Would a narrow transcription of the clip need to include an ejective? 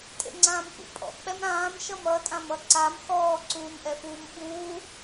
yes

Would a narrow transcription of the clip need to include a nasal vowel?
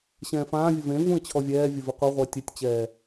yes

